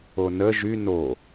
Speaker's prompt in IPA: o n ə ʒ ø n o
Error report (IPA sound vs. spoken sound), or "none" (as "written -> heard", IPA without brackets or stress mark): ø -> y